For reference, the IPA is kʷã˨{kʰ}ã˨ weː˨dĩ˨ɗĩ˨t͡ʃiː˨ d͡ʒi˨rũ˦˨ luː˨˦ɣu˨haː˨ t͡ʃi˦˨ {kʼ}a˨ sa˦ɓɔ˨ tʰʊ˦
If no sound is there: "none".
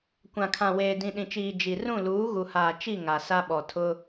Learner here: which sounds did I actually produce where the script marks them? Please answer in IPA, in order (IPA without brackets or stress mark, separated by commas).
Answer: kʰ, ŋ